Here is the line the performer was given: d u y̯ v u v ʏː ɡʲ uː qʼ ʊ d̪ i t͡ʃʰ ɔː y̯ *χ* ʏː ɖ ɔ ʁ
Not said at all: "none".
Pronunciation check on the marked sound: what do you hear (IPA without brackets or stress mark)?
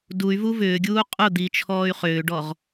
χ